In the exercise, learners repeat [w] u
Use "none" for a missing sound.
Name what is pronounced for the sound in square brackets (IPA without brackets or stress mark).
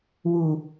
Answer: w